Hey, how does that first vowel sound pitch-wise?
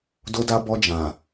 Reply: high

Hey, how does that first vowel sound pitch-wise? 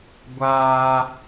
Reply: high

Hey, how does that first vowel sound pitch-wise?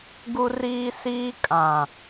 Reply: high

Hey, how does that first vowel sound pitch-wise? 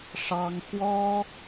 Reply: high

